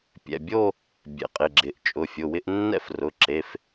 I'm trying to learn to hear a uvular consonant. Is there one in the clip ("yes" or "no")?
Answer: yes